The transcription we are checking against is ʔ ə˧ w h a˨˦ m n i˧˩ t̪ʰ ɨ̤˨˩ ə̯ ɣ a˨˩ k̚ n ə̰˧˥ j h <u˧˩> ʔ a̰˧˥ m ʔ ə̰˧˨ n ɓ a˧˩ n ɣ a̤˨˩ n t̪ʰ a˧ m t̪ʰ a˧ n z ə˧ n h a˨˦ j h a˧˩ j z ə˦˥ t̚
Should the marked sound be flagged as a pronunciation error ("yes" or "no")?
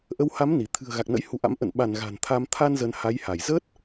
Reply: yes